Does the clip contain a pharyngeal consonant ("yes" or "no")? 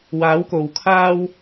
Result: no